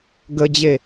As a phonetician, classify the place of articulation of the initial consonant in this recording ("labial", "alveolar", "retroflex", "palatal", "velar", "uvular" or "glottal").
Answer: velar